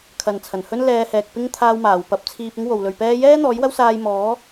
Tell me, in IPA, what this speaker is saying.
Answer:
kʰ ɐ˨ n t͡sʰ ɐ˨˩ n h ɵ˥ n l ɛː˧ h ɛː˨ k̚ p ɪ˥ ŋ t̪ʰ aː˧ w m aː˨˩ w p ɐ˧ p̚ t͡sʰ iː˧ p̚ ɪ˥ ŋ w o˨ w l ɵ˨ ɥ p ɛː˥ j ɛː˥ n̪ ɔː˨˥ j w ɐ˥ w s aː˧ j m ɔː˨˥

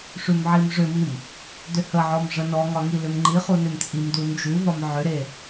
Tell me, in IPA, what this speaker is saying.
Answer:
ʂ ʉ m ʕ i m ʐ ʏ m i m | d ʏ h ə ʕ ɔ m ʐ ə n ɔ ŋ ɒ ŋ i l ʏ m ŋ͡ǃ i χ u n ʏ m t͡sʼ i m d u n d͡ʒ ʉ v ɒ m ʕ ʏ ɾ e

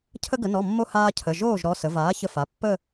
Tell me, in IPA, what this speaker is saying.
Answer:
cʰ ə˧ ɡ ə˩˧ n ɔ˩˧˩ mː o˧ h aː˧ cʰ ə˩˧˩ ʒ oː˥˩ ʒ ɾ ɔ˩˧˩ s ə˩˧ v aː˩˥ ç ə˧ f a˩˧˩ pː ə˥˧

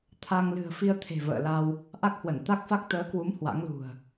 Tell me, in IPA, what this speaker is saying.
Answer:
t̪ʰ a˧ ŋ l ɨ̤˨˩ ə̯ f i˧ ə̯ t̪ʰ e̤˨˩ v ə̰ː˧˨ l a˧ w | ʔ a˦˥ k̚ h w ə˧˩ n t̪ a˦˥ k̚ f a˦˥ k̚ t̪ əː˨˦ k w u˨˦ m h w a̰˧˥ ŋ l ṳ˨˩ ə̯

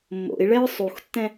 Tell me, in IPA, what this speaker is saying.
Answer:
mː o̰ i̯ ɭ ɛ ɹ sˤ u x tː ɛ̃

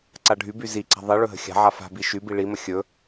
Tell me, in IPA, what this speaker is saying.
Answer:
ǀ a ɖʱ y b y z i ǀ a̤ ðˤ i ɭ ɵ ɦ ə̤ xʲ a̤ ʕ a f a̤ b i ʃ y b i ɭ i m ə xʲ ɵ

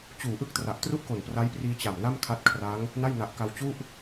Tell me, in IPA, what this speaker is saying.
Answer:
t͡ɕ uː˨˩ ʔ ɯ˥˩ k̚ t r a˨˩ ʔ t r u˥˩ ʔ k o˨˩ n p r a˦˥ j p r iː˧ t͡ɕ a˨˩ m n a˥˩ m kʰ a˦˥ t̚ kʰ r a˦˥ ŋ | n a˥˩ j n a˨˩ ʔ k a˧ w t͡ɕ u˥˩ ʔ

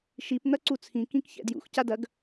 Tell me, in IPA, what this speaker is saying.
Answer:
ʃ i p n̪ ɐ ǀ u t͡sʰ ĩ k ĩ k ç ɛ̰ d j ṵ x c a d ɐ ɡ

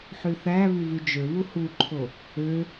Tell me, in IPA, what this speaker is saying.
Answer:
ħ y θ æ β y v y d͡ʒ ø β u h u ǃʰ o | ø

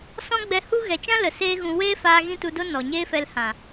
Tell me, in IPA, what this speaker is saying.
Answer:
s ɔ̃˦ ɡ͡b ɛ˧ h u˦ ɣ ɛ˨ t͡ʃ ã˦ l ə˨ s eː˦ ɣ ũ˧ w eː˦ f aː˧ ɣ ĩ˦ t u˧ d o˦ n ɔ˨ ɲ eː˦ f ɛ˧ l h ã˨

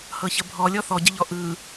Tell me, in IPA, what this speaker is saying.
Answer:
h ɤ ç ə bʱ ɔ lʲ ɔ θ ɔ ɟ ə ʎ ɔ ʔ ɯ

